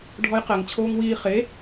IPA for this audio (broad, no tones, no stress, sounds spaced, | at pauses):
ɖʱ ɔ j q ɛ ŋ t͡ɕʰ oː ŋ w iː χ e